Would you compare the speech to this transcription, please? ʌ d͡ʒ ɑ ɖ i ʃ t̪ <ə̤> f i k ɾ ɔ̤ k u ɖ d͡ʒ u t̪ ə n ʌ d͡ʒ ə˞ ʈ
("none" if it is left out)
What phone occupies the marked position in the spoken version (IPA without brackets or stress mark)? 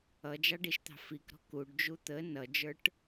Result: ɑ̤